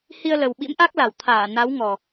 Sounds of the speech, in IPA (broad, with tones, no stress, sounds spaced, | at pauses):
h i˧ ə̯ l ə˨˩ w ɓ ḭ˧˥ m ʔ a˦˥ k̚ l a˨˩ w t̪ʰ aː˧˩ n a˨˦ w ŋ ɔ˨˩